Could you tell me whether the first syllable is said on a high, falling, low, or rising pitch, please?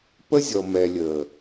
high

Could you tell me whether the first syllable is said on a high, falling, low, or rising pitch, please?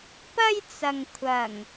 high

